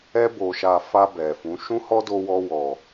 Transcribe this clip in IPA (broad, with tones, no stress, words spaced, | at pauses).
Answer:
ɛ˧bo˨ʃa˨ fa˧ bɛ˨fũ˨˦ ʃũ˦hɔ˦do˧wɔ˧ wɔ˨